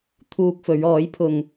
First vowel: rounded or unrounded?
rounded